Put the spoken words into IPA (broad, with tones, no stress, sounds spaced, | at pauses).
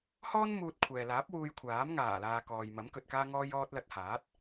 h ɔː˥ n m uː˧ t̚ kʷʰ ɛː˨ l aː˨˥ p̚ w uː˧ j kʷʰ aː˨˥ m ŋ aː˨˩ l aː˨ k ɔː˨ j m ɐ˨˥ m k ɵ˨ t̚ k aː˧ ŋ ɔː˧ j ɔː˧ t̚ l ɐ˧ t̚ h aː˨˥ t̚